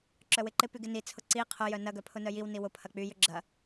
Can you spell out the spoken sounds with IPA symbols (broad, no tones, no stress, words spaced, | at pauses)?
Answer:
ǁœwɪǃɪpyɡ ɪnit͡sʰʊ ǀi qʰojœ nɐɡœ pʰʊnœjiwni wʊpʰɐ k͡pyjʏ ɡ͡ǁɐ